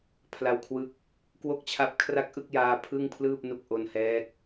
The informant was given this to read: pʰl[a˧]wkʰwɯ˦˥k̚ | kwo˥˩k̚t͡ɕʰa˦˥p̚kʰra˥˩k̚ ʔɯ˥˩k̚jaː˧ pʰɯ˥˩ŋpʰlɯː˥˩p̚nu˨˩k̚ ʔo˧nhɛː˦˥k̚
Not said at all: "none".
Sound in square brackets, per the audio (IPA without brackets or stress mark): a˧